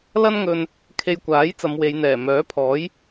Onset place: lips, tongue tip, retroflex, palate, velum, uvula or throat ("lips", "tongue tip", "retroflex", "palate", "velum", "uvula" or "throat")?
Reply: tongue tip